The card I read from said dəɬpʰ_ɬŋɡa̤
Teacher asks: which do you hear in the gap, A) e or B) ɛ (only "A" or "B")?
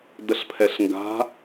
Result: B